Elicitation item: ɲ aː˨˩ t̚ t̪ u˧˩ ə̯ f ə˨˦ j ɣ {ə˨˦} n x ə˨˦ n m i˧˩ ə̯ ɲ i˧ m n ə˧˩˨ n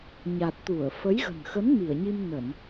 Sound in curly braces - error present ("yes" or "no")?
yes